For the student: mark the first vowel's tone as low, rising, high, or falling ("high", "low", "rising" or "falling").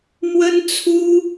high